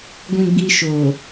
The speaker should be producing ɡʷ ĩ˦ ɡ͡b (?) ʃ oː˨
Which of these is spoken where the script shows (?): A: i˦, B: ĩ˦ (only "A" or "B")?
A